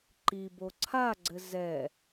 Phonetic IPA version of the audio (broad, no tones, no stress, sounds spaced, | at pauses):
ǃ i b o ǀʰ a ɡ͡ǀ ɘ z ɛ